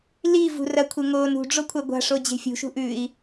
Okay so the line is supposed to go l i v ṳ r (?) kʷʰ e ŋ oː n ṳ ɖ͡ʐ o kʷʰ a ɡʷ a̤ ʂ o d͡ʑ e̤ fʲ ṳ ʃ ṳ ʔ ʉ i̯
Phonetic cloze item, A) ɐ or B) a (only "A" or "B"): A